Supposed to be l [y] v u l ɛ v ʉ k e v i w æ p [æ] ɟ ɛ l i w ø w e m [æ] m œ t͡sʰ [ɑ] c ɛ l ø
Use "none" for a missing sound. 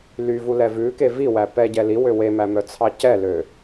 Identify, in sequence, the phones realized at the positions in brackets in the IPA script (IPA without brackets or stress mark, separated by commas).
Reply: y, ɛ, æ, ɑ